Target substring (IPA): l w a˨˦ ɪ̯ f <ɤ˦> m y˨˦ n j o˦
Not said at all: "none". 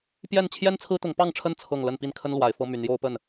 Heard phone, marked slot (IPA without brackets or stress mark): ɤ˦